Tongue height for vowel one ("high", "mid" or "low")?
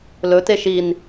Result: mid